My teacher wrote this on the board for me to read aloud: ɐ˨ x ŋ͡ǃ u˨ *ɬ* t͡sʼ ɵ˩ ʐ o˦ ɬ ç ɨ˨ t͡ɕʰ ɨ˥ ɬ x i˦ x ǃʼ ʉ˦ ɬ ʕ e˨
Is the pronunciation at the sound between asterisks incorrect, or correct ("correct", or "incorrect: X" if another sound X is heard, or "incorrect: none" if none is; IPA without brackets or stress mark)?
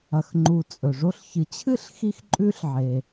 incorrect: none